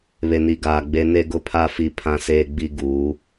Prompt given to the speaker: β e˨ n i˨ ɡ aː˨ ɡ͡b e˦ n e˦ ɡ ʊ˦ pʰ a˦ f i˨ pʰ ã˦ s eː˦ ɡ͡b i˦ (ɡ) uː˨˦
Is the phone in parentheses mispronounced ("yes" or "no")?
no